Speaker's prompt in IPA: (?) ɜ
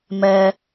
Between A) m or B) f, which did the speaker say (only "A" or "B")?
A